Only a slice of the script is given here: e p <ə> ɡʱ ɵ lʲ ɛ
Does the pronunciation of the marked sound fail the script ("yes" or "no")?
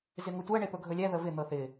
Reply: yes